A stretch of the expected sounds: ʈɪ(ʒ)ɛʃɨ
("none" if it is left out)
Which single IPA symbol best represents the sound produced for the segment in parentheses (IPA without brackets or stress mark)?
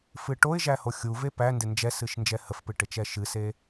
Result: t͡ʃ